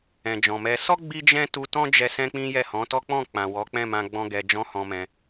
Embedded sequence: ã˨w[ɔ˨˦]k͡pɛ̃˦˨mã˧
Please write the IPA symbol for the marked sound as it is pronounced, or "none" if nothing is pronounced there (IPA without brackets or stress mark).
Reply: ɔ˨˦